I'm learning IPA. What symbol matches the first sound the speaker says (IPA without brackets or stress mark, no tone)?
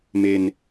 m